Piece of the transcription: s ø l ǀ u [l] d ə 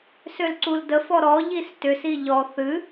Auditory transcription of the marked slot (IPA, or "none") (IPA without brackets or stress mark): l